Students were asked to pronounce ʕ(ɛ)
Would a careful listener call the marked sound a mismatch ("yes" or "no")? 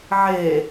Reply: yes